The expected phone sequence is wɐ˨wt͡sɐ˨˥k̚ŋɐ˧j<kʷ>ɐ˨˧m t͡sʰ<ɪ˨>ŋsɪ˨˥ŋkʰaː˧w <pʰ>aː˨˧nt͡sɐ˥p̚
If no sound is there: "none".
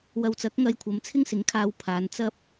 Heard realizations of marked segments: kʷʰ, ɪ˥, pʰ

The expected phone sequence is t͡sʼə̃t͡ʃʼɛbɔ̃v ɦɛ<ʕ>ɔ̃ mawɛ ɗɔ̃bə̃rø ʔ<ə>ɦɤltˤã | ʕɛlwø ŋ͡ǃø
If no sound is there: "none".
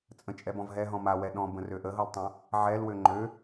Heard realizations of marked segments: ɦ, ə

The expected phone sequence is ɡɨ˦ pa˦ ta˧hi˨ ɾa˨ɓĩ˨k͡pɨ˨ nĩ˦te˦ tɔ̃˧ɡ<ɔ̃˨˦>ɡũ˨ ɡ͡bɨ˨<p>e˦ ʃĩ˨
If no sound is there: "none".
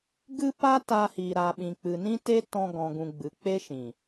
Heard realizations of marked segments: ɔ̃˨, k͡p

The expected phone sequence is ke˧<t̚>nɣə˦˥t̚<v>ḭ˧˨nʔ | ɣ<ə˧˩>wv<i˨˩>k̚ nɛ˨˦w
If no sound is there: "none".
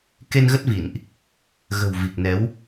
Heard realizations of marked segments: none, v, ə̤˨˩, i˨˩

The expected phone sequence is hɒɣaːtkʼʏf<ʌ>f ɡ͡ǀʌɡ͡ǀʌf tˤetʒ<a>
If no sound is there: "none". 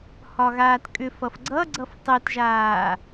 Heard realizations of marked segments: ʌ, aː

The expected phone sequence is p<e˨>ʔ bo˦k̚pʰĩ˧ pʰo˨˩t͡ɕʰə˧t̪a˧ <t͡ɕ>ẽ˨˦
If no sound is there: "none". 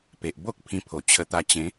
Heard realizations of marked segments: e˨, t͡ɕ

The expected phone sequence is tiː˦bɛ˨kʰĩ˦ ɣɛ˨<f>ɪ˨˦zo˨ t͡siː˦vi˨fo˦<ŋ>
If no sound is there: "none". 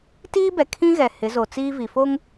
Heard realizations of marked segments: h, ŋ

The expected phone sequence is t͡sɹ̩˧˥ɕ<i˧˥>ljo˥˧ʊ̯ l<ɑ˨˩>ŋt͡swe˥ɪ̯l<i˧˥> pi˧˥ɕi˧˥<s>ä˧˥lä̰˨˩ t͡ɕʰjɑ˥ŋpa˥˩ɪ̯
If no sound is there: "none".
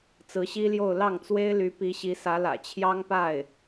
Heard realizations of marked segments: i˥, ɑ˥˩, y˧˥, s

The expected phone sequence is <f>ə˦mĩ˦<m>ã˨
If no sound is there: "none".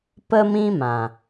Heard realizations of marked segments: p, m

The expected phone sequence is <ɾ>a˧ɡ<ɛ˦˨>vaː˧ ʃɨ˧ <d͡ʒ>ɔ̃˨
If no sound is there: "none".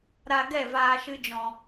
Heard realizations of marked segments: ɾ, ɛ˦˨, d͡ʒ

